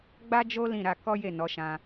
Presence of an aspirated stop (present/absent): absent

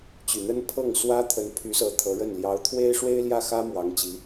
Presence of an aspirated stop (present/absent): present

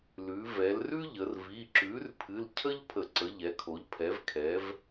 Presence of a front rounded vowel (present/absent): absent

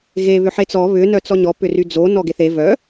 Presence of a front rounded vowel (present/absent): present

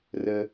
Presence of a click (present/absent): absent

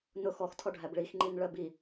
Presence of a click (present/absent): present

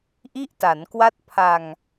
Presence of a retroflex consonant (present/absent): absent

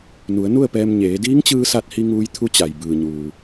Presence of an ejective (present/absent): absent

